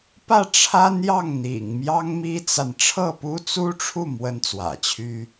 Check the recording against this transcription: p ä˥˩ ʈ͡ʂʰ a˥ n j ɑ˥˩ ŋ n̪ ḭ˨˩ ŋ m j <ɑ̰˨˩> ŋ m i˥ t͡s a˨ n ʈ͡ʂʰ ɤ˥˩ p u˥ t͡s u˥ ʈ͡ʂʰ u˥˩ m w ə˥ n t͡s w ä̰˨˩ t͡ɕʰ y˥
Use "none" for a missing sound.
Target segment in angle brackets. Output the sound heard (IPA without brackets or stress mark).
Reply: ɑ˥